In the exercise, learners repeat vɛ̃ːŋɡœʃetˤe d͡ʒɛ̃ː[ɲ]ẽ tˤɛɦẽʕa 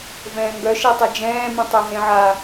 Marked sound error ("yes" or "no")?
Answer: yes